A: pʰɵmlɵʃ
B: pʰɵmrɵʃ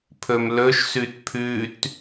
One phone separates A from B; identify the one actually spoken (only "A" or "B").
A